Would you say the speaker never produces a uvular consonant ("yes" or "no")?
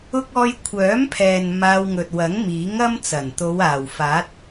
yes